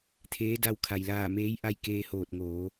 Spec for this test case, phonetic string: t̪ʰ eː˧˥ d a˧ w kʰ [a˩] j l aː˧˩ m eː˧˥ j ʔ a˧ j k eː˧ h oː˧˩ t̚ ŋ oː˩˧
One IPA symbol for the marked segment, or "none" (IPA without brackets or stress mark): a˩